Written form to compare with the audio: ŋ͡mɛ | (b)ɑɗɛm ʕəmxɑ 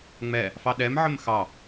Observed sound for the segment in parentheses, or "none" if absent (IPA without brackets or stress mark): f